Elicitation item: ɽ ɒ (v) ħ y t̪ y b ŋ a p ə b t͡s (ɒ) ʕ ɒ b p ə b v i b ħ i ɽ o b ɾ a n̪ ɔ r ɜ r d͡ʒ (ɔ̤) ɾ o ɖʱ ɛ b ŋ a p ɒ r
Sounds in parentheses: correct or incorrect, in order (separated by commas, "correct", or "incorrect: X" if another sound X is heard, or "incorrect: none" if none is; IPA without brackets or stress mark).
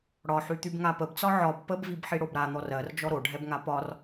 incorrect: none, correct, incorrect: ɔ